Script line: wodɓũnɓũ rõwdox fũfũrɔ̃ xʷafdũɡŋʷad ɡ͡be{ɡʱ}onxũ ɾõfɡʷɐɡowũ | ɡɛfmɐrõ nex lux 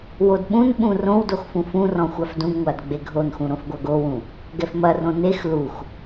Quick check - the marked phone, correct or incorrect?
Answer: correct